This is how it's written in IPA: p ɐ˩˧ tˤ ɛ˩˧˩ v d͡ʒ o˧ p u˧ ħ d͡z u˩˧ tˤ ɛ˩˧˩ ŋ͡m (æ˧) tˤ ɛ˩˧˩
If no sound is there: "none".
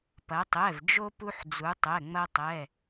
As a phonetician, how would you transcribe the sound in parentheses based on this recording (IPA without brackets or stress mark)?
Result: ɐ˧